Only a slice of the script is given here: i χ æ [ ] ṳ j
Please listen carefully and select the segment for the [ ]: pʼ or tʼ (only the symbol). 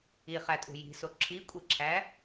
tʼ